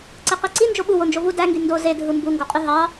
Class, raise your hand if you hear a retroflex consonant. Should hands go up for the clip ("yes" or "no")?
no